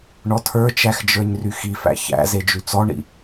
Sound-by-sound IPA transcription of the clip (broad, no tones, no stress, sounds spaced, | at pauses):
ɳ ɔ tʰ ə˞ t͡ʃ æ x d͡ʒ ə˞ ɲ r y x i f æ̰ ç æ̰ z e d͡ʒ y t͡s ɔ ɳ ḭ